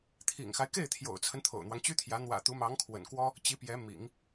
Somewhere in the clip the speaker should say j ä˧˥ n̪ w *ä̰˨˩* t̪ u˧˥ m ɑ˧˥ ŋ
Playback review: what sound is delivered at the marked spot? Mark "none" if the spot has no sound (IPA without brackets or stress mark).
ä̰˨˩